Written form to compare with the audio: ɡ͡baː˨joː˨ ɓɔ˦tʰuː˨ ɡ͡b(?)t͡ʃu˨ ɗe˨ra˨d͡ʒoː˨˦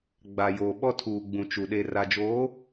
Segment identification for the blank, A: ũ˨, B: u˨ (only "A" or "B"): A